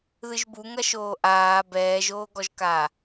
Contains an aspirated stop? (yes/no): no